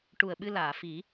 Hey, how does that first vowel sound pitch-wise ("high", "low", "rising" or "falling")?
low